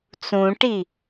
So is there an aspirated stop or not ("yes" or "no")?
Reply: no